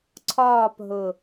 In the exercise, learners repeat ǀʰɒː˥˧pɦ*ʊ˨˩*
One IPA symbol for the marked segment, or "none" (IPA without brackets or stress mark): ʊ˨˩